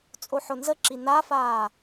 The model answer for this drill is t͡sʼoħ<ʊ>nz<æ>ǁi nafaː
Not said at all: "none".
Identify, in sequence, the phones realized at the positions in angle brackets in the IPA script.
ʊ, ə

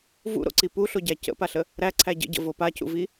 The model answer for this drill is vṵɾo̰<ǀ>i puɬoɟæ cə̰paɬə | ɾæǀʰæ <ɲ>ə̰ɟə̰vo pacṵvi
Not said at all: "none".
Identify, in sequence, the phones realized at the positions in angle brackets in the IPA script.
ǀ, ɟ

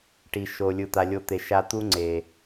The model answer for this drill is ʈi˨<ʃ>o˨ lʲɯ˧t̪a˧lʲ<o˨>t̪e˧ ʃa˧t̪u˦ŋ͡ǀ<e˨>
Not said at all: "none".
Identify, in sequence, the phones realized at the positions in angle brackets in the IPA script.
ʃ, o˦, e˨

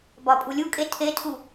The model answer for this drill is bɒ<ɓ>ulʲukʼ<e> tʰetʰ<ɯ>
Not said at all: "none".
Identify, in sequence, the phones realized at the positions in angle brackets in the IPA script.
pʼ, e, u

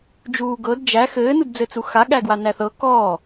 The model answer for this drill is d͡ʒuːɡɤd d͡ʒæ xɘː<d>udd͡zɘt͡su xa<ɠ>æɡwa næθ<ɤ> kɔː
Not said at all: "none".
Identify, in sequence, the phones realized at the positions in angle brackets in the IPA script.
n, ɠ, ɤ

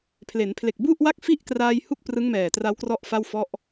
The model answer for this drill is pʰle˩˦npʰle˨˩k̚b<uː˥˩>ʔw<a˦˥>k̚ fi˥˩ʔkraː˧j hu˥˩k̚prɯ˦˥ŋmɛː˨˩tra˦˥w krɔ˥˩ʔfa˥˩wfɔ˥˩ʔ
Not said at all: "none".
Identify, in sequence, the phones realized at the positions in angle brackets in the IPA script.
u˥˩, a˥˩

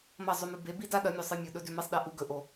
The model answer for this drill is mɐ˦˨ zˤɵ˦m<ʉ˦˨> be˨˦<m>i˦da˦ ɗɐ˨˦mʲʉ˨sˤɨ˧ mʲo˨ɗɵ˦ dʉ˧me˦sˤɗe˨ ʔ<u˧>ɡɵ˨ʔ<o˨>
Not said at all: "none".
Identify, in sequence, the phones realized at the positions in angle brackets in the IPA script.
ʉ˧, b, u˧, o˨

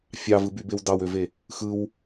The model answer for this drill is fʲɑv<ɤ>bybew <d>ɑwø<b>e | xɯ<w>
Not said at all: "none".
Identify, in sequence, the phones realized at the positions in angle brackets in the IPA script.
ɯ, d, v, w

